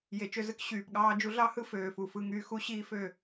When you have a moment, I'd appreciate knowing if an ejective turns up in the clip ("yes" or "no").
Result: no